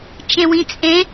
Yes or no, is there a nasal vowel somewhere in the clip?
yes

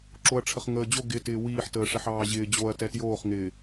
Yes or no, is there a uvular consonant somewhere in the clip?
yes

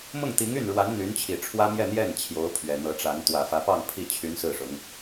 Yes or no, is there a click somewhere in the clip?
no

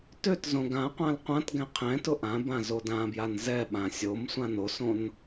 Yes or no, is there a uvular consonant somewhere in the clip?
yes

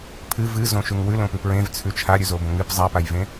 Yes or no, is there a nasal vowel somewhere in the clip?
yes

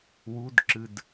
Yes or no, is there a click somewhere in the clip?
yes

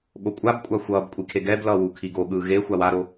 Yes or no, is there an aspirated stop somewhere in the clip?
yes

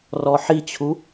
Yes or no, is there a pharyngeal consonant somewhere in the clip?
yes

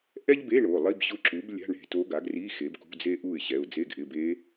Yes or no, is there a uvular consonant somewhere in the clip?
no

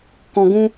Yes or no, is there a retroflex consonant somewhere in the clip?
no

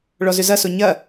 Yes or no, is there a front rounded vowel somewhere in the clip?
yes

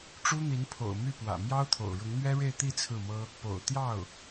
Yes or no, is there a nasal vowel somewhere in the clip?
no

